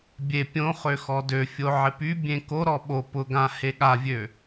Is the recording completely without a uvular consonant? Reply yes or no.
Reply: no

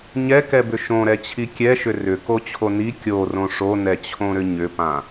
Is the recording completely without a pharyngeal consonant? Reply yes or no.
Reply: yes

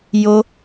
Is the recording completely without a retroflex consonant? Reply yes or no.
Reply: yes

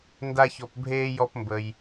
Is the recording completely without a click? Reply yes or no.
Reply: yes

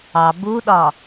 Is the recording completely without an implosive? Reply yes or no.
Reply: no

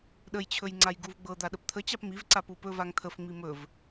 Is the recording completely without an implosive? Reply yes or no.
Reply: no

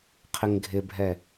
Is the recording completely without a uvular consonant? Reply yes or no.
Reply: no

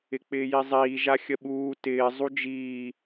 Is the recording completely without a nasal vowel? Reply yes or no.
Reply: yes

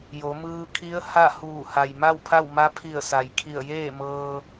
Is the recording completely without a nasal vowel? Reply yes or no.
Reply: yes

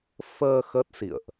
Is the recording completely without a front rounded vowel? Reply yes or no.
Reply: yes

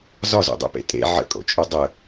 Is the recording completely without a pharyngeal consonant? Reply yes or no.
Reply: no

